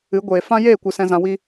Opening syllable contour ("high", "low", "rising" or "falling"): rising